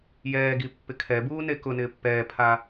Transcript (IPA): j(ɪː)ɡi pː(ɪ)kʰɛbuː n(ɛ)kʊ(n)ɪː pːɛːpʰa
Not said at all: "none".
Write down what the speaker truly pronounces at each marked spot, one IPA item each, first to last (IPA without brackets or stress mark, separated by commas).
ɛː, ɪ, e, n